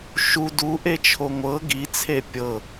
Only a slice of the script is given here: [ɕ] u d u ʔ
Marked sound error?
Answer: yes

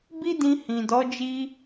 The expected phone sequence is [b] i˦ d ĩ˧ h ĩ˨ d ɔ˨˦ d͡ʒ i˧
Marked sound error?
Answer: no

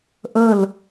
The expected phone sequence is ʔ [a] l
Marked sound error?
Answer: yes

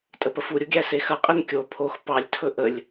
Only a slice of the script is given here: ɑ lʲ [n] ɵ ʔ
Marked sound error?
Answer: yes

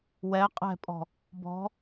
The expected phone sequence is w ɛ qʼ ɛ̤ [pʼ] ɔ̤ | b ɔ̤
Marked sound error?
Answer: no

